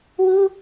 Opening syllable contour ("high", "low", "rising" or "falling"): high